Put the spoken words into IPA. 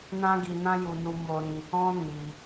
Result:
n ã˦ ɡ i˧ n ã˦ j u˧ n u˧ m o˧ ɾ ĩ˧ | ɔ̃˦ n i˧

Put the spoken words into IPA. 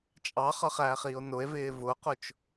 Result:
t͡ʃʼ ɑ χ ʌ χ æː χ iː o̯ n ʊ e̯ v ɪː v ʊ q ʊ t͡ʃ

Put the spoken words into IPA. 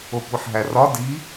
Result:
o kʷ i ħ ɦ æ r ɒ d i

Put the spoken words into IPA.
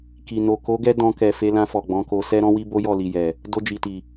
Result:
k i˨ n o˨ k o˨˦ ɡ ɛ˧ d ɔ̃˧ k ɛ˨ f e˨˦ l ã˧ f ɔ˨ ɡ͡b ɔ̃˨˦ k o˧ s ɛ˦ ɾ ɔ̃˦ w i˦ b o˦ j ɔ˦˨ l i˨ j ɛ˨ | d o˧ d͡ʒ i˨ t i˨

